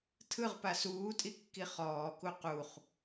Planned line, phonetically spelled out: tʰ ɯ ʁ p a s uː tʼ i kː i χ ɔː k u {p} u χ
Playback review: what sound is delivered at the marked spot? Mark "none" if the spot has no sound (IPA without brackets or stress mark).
q